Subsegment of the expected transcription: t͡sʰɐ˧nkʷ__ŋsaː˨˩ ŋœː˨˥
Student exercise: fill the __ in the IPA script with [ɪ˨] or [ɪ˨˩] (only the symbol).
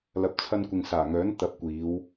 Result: ɪ˨